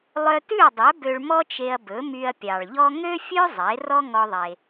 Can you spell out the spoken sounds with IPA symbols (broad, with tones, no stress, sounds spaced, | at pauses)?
lˠ œ˧ t ʉ˥˩ ɐ̯ dˤ œ˩˥ b ø˧ ɭ m ɔ˥ t͡ʃ e˧ ɐ̯ b ɵ˩˥ m y˧ ɐ̯ pʲ ɑ˩ ɭ ʎ ɔ˥ ŋ ø˥ fʲ ø˥ zˤ e˩˥ r ɔ˥ ŋ ɔ˧ ðˤ e˩